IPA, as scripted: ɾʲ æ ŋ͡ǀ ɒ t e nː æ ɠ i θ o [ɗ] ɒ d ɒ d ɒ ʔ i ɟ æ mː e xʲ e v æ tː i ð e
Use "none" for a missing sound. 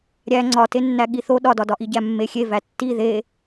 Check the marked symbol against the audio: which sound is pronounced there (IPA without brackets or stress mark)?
ɗ